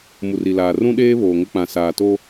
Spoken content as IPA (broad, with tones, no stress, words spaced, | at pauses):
mu˨ri˨laː˨ rũ˦ɗeː˦ βoː˨ŋʊ˦k͡pã˨ saː˨to˦